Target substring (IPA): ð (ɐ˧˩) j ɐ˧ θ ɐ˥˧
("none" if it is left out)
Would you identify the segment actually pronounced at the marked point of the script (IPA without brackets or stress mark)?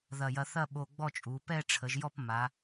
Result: ɐ˧˩